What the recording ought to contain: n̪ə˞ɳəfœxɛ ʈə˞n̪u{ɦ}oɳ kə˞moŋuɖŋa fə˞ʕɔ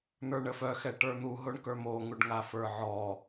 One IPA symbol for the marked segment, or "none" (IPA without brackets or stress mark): ɦ